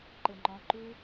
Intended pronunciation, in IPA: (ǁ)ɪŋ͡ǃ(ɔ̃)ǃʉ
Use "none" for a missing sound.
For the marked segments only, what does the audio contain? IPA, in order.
ǃ, ɔ̃

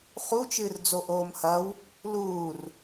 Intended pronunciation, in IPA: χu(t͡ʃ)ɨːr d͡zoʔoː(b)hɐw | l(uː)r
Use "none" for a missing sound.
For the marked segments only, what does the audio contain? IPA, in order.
t͡ʃ, m, uː

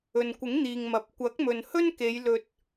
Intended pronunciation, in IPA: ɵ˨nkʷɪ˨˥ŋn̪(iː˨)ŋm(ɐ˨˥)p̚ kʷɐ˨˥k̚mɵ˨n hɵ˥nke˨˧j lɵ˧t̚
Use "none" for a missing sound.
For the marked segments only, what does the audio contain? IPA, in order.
iː˨, ɐ˨

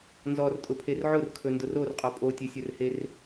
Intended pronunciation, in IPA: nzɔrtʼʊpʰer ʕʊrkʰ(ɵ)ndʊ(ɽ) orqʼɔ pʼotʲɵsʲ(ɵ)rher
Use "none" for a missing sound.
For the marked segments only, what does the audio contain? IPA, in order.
ɵ, r, ɵ

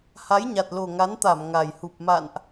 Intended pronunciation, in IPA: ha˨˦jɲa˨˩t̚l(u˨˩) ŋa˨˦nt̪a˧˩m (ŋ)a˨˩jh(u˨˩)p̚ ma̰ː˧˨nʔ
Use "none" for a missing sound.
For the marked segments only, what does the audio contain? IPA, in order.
o˨˩, ŋ, u˨˩

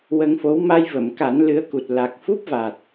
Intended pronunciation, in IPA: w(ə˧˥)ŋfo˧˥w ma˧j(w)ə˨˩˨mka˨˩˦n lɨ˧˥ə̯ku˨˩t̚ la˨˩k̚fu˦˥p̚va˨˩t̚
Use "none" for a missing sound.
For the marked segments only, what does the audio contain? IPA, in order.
ə˧, v

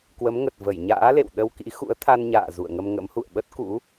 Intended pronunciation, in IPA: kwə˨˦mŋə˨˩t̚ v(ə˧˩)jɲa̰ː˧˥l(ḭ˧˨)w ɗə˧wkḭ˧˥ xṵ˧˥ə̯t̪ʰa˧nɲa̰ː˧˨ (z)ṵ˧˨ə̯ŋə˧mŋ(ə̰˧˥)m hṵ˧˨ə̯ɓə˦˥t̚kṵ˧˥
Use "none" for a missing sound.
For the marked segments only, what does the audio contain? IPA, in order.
ə˧˩, ḛ˧˨, z, ə̰˧˥

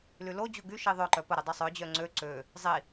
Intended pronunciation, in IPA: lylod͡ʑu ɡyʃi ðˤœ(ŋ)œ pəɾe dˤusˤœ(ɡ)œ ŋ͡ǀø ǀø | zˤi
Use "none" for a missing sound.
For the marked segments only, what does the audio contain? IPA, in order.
ǃ, d͡ʑ

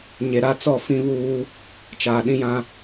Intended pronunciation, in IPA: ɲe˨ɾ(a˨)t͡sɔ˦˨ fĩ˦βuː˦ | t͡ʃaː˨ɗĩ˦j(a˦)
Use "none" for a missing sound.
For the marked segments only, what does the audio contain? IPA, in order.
a˦, ã˦

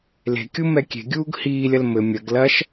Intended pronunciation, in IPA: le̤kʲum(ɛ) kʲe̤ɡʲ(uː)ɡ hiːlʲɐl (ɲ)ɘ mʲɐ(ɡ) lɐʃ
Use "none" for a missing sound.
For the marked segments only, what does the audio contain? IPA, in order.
ɛ, uː, m, ɡ

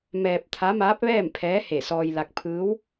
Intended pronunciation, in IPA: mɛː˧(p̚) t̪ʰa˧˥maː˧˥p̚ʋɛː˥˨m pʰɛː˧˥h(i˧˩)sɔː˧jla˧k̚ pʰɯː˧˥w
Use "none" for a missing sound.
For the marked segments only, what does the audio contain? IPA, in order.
p̚, e˧˩

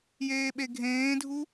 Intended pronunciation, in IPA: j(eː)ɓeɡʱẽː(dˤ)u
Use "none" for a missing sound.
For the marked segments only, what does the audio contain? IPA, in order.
eː, dʱ

